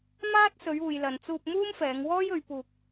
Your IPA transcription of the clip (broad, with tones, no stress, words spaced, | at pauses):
maː˥t̚ sɵ˨˧ɥuː˨jlɐ˨nt͡suː˧p̚ muː˥mfɛː˨˧ŋwɔː˥jɵ˨˧ɥ puː˧k̚